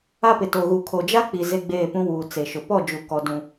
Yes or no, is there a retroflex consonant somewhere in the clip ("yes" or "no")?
no